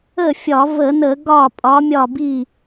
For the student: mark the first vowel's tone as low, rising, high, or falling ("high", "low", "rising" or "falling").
falling